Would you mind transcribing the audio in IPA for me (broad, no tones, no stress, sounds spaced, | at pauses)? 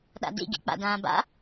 ɗ a̰ d ḭ ɡ ḭ k͡p a̰ d ãː b a̰